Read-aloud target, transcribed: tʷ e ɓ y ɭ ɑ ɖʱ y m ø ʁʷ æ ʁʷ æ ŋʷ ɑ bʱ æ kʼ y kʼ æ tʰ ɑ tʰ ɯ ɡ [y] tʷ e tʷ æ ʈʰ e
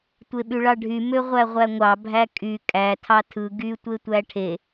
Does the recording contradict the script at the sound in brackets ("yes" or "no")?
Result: no